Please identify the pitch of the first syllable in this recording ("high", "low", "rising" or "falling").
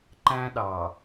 high